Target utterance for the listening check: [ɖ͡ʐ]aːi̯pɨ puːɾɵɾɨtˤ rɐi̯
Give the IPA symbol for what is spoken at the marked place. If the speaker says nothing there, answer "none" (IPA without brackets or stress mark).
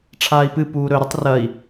ʈ͡ʂʰ